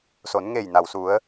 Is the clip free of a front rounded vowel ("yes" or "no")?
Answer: yes